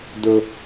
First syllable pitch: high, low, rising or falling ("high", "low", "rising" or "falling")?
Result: high